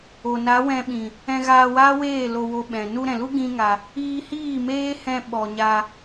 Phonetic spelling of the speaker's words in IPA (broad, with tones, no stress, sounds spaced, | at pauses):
o˨ n a˨˦ w ɛ̃˧ ɓ ĩ˨ | ɛ̃˧ ɣ aː˧ w aː˦ w eː˦˨ l o˧ w o˧ ɓ ɛ̃˨ n u˧ ɾ ɛ̃˨ l u˦ ɡ ĩ˦ ŋ a˧ | iː˧ h iː˦˨ m eː˦ h ɛ̃˧ ɓ ɔ˨ ɲ a˧